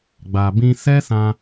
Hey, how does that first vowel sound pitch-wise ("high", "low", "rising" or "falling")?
low